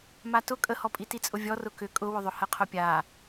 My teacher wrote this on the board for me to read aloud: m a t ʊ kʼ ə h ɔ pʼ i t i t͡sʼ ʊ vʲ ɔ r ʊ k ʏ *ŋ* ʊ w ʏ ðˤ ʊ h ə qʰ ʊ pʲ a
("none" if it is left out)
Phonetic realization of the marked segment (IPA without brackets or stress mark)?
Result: kʼ